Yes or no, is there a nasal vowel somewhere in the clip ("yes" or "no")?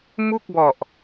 no